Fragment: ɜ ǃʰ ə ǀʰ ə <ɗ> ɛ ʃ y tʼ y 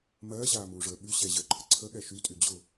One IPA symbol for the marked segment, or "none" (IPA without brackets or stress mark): ɠ